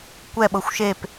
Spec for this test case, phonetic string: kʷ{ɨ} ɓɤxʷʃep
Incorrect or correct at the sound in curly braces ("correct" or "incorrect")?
incorrect